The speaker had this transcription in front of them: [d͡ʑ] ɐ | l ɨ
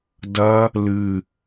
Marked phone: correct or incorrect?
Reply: incorrect